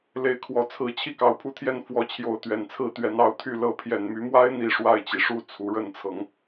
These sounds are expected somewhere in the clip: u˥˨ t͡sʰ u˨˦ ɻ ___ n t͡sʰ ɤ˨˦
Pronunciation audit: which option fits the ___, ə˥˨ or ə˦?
ə˥˨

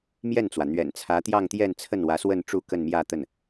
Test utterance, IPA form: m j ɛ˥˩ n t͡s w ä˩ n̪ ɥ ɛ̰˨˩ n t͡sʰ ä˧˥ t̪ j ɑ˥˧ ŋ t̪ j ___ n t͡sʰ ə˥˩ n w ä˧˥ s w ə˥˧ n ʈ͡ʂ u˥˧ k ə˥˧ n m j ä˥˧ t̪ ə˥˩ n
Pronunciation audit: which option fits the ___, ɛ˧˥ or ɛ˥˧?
ɛ˥˧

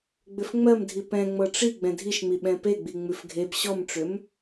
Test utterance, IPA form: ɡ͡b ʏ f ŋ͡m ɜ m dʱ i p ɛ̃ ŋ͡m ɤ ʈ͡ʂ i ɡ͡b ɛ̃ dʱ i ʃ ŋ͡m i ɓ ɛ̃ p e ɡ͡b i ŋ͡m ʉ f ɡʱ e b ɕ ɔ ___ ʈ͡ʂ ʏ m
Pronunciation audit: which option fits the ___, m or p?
m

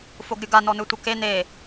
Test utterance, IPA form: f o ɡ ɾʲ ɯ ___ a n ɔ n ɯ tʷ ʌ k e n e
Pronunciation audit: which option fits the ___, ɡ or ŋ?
ɡ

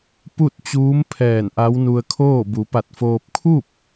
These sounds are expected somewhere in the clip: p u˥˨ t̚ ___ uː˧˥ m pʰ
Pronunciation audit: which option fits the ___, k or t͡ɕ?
t͡ɕ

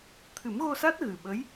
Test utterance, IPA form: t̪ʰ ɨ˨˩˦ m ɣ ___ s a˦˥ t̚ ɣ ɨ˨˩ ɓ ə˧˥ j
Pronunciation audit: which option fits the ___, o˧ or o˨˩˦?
o˧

